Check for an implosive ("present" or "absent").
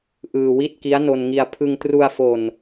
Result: absent